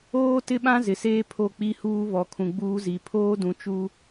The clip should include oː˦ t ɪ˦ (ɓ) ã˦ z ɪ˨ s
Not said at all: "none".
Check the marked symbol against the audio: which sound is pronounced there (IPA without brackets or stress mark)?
ɓ